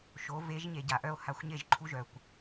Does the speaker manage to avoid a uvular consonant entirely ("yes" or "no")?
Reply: yes